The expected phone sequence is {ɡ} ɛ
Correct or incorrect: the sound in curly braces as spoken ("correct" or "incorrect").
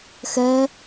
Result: incorrect